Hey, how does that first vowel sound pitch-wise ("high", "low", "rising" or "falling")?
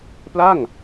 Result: falling